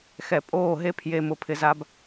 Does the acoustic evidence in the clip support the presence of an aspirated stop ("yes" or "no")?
yes